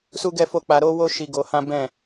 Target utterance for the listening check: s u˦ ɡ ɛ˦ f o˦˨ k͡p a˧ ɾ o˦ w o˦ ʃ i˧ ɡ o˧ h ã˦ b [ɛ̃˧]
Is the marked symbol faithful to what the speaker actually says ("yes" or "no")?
no